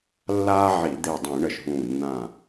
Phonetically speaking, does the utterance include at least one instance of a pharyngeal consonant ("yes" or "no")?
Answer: yes